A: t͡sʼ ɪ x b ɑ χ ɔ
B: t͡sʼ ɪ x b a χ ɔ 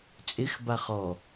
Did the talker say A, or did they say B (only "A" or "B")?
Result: B